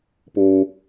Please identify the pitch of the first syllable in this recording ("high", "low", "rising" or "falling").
low